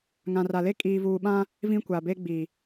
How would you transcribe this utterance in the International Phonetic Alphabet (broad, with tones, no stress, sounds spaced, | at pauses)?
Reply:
ŋ ã˨ r a˨ l e˦ kʼ iː˨ v uː˨ ɓ ã˦ | v ĩ˦ kʷ a˨ b e˦ ɡ͡b i˨